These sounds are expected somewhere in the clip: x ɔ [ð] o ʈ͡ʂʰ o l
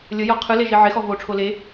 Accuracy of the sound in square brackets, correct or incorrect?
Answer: incorrect